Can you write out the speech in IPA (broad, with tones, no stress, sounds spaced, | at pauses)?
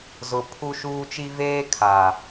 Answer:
z ʊ˦ pʰ u˦ ʃ uː˦ t͡ʃ i˦ v eː˦ kʰ a˨